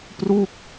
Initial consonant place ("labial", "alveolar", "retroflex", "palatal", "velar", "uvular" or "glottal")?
labial